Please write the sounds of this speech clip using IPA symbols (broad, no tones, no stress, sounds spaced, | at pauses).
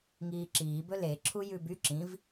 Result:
ŋ iː ǁ iː b ɵ l e ǁʰ u j ʉ b y ǁ ĩ v